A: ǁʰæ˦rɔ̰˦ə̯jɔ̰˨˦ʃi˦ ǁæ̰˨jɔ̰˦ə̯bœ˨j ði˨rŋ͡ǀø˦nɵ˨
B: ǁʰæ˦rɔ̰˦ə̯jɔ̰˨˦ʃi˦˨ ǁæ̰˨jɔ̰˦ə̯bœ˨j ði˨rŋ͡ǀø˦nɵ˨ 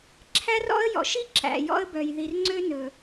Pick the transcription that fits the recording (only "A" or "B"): A